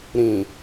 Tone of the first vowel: low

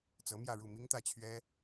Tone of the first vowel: rising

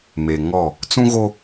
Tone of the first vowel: low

